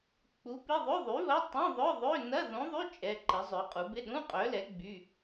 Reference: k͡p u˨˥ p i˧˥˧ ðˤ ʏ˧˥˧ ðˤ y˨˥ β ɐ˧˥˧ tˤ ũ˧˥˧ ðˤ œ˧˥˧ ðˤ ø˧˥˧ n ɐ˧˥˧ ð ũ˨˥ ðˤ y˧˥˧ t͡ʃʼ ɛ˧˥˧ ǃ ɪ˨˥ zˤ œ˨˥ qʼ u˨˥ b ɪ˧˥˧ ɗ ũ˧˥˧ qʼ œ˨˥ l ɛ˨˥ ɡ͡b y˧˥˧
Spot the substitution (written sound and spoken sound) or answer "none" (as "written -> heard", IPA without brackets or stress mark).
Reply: none